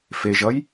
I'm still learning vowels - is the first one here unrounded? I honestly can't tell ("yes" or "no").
yes